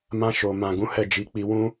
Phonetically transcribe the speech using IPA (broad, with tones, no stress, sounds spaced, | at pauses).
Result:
m ã˦ ʃ o˧ m ã˨ ɡ ũ˨˦ h ɛ˦˨ d͡ʒ i˨˦ k͡p i˧ w ũ˦